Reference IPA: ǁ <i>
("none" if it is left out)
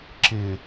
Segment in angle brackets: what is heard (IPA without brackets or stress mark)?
ɪ